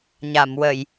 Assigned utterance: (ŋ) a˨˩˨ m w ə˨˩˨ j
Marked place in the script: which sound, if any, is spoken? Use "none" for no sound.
ɲ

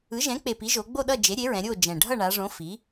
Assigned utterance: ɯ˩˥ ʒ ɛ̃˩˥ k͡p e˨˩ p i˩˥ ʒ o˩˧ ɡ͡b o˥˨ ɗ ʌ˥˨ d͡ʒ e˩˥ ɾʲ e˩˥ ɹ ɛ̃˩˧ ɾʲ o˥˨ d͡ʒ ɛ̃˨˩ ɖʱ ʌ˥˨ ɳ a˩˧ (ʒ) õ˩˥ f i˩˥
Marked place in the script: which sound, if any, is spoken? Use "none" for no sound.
ʐ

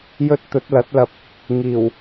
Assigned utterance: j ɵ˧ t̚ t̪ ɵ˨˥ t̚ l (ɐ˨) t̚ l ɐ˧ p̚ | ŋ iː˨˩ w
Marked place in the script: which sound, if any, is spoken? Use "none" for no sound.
ɐ˨˥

